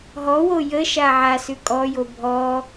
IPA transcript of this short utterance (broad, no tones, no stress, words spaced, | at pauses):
ɦɔwo jəʃa ʕasʉ kʼɔjo bʱɔ